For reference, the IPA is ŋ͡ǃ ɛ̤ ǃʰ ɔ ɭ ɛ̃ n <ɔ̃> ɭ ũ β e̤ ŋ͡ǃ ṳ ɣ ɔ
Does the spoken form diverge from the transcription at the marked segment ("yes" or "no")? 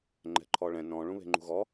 no